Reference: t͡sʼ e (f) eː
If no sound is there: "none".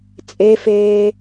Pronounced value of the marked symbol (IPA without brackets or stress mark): f